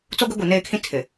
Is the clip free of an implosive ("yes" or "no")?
yes